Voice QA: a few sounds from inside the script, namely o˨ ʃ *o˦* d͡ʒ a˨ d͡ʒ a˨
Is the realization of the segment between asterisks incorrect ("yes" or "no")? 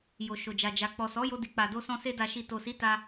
yes